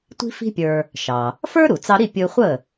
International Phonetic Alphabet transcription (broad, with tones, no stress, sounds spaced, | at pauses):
tʷ i̤˥ f i̤˥ pʲ ə˞˧ | ʃ ɑ˩ | f ə˞˥ ɾ u˩ t͡s ɑ˧ ɾ i˥˩ pʲ ɯ˧ χʷ ə˥˩